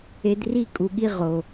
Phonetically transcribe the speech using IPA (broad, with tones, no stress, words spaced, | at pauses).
e˧dri˦˨ kʼu˧ɠi˦ ʁo˨